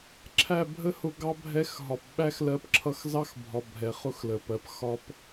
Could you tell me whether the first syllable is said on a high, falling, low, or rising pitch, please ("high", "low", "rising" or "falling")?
falling